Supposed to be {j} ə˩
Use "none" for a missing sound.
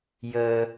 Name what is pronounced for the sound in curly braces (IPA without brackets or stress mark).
j